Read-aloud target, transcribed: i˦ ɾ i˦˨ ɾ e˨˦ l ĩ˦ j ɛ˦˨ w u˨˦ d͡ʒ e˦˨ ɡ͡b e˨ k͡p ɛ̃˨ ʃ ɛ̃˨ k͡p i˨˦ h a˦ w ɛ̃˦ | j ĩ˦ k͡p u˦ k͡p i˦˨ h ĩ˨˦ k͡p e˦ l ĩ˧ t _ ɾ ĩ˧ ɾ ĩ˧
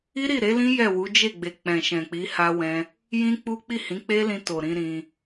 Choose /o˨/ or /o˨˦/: o˨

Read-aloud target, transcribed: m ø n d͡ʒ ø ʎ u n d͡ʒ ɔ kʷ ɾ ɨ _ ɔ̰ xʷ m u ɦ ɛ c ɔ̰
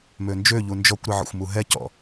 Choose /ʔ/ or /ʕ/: ʕ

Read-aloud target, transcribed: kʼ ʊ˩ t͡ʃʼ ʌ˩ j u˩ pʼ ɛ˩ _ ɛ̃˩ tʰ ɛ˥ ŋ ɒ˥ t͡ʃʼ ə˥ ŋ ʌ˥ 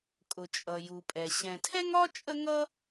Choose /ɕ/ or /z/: ɕ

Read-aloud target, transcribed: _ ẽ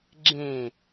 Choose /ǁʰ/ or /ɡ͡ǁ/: ɡ͡ǁ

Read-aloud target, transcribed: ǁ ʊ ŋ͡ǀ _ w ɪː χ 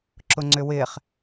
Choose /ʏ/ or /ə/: ʏ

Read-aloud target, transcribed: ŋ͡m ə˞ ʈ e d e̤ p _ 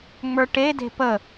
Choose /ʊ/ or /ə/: ə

